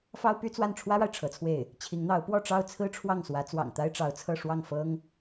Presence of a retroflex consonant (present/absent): present